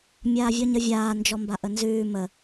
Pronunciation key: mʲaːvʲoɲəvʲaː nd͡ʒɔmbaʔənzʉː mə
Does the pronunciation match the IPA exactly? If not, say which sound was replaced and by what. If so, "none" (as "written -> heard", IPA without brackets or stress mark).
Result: none